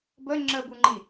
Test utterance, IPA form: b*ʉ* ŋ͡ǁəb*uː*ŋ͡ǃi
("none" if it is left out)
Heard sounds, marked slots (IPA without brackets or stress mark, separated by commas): ə, u